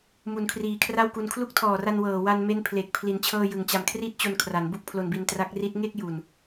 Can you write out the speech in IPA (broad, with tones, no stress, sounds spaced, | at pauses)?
m u˩˦ n kʰ r iː˨˩ kʰ r a˥˩ w k u˧ n kʰ l u˦˥ k̚ tʰ ɔː˨˩ r a˧ n w ɤː˨˩ w a˧ n m e˦˥ n pʰ l e˨˩ k̚ pʰ l i˩˦ n t͡ɕʰ ɤː˧ j ɯ˨˩ ŋ t͡ɕ a˨˩ m kʰ r i˥˩ t̚ t͡ɕ o˧ n kʰ r a˩˦ n b u˥˩ k̚ pʰ l o˧ n b i˧ n t r a˦˥ k̚ r i˦˥ t̚ ŋ e˥˩ k̚ j u˨˩ n